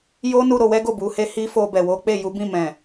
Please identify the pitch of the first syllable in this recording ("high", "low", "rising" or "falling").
high